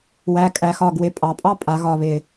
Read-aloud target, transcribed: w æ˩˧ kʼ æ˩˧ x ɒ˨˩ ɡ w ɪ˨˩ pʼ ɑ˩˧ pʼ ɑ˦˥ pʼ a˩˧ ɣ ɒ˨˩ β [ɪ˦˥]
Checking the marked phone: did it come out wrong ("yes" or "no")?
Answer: yes